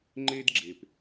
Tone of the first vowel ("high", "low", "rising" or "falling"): high